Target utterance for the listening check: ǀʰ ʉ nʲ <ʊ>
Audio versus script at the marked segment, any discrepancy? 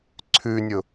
no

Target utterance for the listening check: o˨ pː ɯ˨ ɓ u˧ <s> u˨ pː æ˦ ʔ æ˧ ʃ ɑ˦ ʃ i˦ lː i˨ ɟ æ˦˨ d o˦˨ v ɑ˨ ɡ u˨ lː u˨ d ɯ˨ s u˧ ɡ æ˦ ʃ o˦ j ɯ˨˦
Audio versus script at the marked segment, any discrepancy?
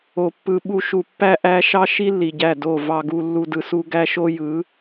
yes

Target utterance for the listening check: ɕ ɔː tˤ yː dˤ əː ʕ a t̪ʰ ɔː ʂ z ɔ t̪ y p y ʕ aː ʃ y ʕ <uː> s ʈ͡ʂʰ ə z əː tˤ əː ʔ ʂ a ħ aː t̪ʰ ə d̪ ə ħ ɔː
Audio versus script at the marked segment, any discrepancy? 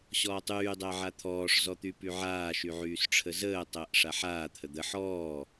yes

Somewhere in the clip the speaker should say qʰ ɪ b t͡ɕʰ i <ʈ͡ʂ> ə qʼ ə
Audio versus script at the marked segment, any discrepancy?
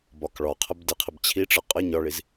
no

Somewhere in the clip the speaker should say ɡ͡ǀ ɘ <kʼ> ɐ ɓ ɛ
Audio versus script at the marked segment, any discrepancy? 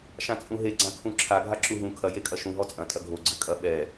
no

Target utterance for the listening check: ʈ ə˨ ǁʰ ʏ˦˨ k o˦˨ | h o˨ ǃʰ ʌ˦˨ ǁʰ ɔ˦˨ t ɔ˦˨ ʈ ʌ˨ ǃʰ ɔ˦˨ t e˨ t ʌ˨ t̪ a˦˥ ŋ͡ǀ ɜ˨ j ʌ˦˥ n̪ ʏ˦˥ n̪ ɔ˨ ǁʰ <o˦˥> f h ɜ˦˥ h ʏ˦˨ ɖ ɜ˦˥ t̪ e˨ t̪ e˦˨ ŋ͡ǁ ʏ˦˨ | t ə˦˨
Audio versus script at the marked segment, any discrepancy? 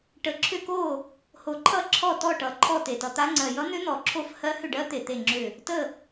yes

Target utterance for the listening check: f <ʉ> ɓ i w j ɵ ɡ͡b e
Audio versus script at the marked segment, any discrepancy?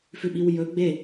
no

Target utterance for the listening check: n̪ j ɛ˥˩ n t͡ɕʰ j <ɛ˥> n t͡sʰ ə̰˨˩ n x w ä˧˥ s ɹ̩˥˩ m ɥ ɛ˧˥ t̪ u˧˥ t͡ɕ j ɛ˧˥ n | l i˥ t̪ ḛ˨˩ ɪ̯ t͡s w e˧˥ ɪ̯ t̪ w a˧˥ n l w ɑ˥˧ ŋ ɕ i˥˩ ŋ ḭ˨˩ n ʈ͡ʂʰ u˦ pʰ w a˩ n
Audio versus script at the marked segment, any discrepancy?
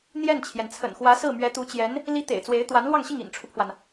yes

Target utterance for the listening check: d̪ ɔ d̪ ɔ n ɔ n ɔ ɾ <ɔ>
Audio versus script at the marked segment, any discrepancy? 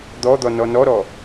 no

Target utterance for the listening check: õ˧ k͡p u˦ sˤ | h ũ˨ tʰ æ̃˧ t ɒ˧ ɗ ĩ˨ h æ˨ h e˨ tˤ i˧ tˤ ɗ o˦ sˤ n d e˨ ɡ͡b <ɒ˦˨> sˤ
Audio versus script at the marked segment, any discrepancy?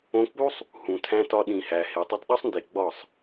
no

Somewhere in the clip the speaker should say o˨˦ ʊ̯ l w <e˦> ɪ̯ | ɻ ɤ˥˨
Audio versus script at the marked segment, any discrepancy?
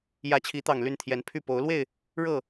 yes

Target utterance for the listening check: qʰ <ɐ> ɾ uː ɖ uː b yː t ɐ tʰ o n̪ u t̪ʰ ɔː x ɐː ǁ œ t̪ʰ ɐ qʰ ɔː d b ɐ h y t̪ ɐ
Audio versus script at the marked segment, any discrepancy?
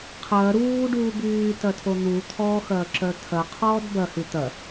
yes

